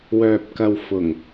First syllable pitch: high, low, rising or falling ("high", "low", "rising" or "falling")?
low